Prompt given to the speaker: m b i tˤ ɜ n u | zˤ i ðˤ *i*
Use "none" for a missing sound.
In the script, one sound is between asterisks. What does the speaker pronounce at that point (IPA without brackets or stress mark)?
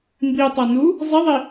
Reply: i